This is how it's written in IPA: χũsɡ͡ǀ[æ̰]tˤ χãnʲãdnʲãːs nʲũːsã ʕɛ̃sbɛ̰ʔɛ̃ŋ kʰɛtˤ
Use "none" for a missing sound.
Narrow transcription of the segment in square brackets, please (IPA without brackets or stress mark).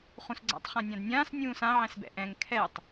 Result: æ̰